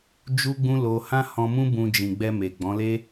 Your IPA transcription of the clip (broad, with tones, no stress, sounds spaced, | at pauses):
d͡ʒ u˦ ɡ͡b ũ˦ l o˧ h ã˦ h ɔ̃˧ m ũ˦ b ũ˧ d͡ʒ ĩ˨ ɡ͡b ɛ˧ m e˨ ɡ͡b ɔ̃˨˦ l e˦